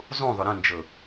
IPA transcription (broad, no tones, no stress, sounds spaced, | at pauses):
zˤ ũ ðˤ ʏ ɾ ə̃ n d͡ʒ ɤ